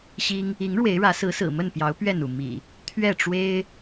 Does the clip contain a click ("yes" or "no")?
no